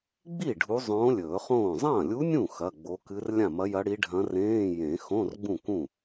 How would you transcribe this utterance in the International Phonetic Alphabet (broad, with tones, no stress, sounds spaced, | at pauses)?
ɡ͡b i˥˩ ɖʱ u˧˥ zˤ õː˧˥ lʲ ɵː˨˩˦ χ õː˥˩ zˤ ɐ̃ː˥˩ lʲ u˧˥ nʲ ũ˥˩ x ɐ˧˥˧ ɡ͡b o˧˥ k ɨ˧˥ r lʲ ã˥˩ m ɐ˧˥ j ɐ˧˥ ɽ i˧˥ ɖʱ ɐ̃˧˥ r ẽː˧˥˧ j ẽ˨˩˦ x õ˧˥˧ r ɡ͡b ũ˥˩ k ũ˥˩